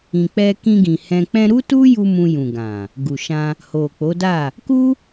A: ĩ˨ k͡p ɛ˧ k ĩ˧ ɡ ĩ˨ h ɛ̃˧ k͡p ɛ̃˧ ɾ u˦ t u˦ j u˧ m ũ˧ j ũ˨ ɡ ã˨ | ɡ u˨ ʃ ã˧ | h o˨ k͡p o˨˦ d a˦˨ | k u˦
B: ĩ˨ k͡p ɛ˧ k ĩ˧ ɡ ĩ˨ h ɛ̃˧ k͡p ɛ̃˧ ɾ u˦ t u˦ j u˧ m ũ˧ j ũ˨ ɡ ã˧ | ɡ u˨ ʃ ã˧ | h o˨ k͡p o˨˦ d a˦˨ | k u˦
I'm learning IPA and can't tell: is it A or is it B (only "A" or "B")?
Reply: A